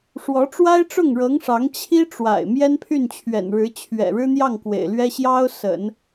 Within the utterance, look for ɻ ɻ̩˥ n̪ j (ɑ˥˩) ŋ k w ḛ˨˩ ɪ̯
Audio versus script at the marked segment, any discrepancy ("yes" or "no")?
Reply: no